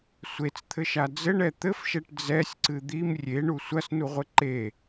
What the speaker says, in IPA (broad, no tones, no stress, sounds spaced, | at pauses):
sʷ e t͡s t̪ʰ ɘ ʃ a d͡z ɘ ɳ ɛ t̪ ɘ f ʃ ɛ ʈ d͡z ɛ sʲ ǀ ɨ d̪ i m rʲ e ɳ u sʷ ɐ s n u ʁʷ ɘ ǃ e